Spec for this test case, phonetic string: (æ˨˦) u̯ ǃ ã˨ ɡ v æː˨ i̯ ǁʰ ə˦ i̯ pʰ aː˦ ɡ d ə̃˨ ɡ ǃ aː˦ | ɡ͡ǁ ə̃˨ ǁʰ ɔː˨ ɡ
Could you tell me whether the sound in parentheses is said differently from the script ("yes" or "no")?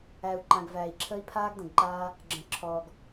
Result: yes